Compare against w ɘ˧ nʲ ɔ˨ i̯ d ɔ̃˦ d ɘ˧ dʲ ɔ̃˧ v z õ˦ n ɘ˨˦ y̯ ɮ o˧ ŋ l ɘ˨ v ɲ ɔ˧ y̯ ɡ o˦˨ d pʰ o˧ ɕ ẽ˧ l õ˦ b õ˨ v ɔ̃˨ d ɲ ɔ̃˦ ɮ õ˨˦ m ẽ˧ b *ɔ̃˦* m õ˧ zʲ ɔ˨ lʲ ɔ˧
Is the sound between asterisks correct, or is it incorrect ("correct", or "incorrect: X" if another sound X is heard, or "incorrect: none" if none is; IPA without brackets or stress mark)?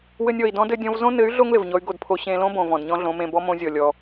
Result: incorrect: ɔ˦